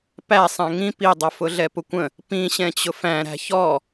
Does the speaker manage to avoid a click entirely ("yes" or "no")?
yes